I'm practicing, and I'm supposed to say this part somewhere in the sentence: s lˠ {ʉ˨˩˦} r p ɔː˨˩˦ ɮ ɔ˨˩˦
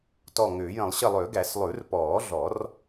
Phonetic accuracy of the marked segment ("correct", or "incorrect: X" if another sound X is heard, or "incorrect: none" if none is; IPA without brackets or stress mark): correct